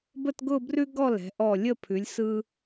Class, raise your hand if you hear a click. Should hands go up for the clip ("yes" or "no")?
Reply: no